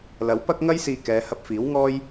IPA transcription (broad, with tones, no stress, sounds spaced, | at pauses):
l ɐ˨˥ w p ɐ˥ k̚ ŋ ɐ˥ j s iː˧ k ɛː˨˧ h ɐ˧ p̚ f iː˨˥ w ŋ ɔː˥ j